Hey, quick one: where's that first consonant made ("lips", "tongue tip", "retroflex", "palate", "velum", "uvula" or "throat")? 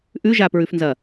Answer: throat